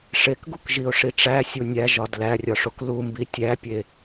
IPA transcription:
ʂ e k ɡ u k ʒ i ʊ̯ ʂ i ʈ͡ʂ æ sʲ u nʲ æ ʒ ɒ d l æ rʲ ɒ ʂ o k l u m b i tʲ æ pʲ e

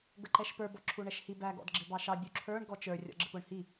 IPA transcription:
ɡ ə ǃ ɛ ʃ p ə˞ b ɔ ǁʰ u ɳ ɛ ʃ h i b æ ɡ ɔ̰ d ɡ͡ǁ ɪ b ɑ ʃ ɑ bʲ u ǁʰ ə˞ ɳ ɡ ɔ t͡ʃ ə˞ rʲ ɔ̰ ɡ͡ǁ ɪ p ʊ ɳ h i

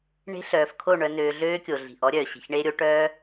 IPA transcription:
ɳ e̤˦ ɬ œː˨ f kʰ o˦˨ ɳ œ˦ n øː˦ ɮ øː˦ kʲ o˨ ɮ i̤˨ ʔ ɔ˦ ɾʲ œː˨ ɕ e̤˨ ç ɳ eː˦ ɾʲ o˦ ʈ œː˦

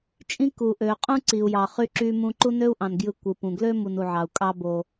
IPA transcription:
t͡ʃʼ ĩ˦ k u˩ ʔ ø˩ qʼ ũ˦ ǀ i˩ u̯ j ɑ˩ χ y˦ ǁ y˦ m ũ˦ ǃ u˥ n ø˥ u̯ ʔ ɑ̃˩ n ɡ j ɯ˨ kʷ ɯ˩ p ũ˩ ɡ l ø˦ m u˨ n u˩ ʕ ɑ˩ u̯ kʼ ɑ˦ b o˨

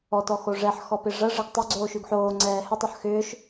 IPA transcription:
ɔ t ɔ x o ʐ ɛ ħ x ɔ p ɪ ʐ ɐ ʐ ɪ ɡ tˤ ʏ ɡ͡ǀ oː ʃ y ɡ ħ oː ŋ͡ǀ ɛː h ʏ tˤ ɐ ħ x ʏː ʃ

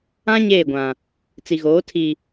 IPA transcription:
ã˦ ɲ eː˦˨ ɡʷ ã˨ | t͡s i˨ ɣ oː˨˦ tʰ i˨

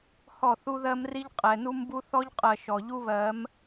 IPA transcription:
h ɔ˦˨ θ u˦ ð ɜ˦ m r i˦ ʎ qʼ ɛ˨ n u˦ m b u˦ θ ɔ˦ ʎ qʼ ɜ˨ ʃ ɔ˨ ʎ u˦ β ɜ˨˦ m

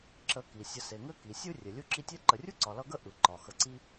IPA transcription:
ǁ ə˨ k i˩ sʲ ə˨ s e˩ ŋ ɘ˦ k i˩ sʲ ɯ˦ rʲ ɛ˩ lʲ u˦ ǁ i˦ tʲ ɛ˥ ǃ ə˨ rʲ u˥ ǀ ɒ˨ l ʌ˦ ɡ ə˥ ʔ ɯ˩ ǃ ɒ˩ x ə˨ ǀ i˦

